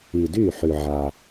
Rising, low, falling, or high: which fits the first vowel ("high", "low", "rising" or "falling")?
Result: low